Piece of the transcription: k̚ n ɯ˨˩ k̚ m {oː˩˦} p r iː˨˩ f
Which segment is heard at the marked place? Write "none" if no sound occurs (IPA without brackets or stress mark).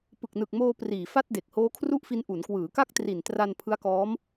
oː˧